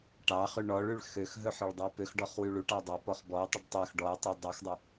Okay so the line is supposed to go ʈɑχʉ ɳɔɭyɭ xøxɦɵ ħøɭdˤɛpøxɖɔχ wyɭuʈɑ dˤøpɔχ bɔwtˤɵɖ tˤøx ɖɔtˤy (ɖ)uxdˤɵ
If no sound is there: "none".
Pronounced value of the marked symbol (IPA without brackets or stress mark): dˤ